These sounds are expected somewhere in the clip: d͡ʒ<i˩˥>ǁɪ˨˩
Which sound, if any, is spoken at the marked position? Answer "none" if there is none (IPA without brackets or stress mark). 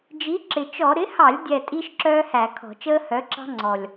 i˩˥